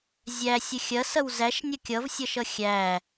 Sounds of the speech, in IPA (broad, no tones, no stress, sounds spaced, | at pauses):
zʲ æ sʲ ə xʲ ɐ s ɐ w z æ ʃ nʲ ʌ kʲ ʌ v sʲ ʌ ʃ ʌ xʲ æ